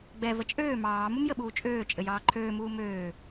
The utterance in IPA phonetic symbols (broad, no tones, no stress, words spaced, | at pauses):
ɡ͡bɛ vət͡ʃʼøː mɑː mumjəɓuːt͡ʃʼøː t͡ʃʼɘjɑːǃʰøːmuː møː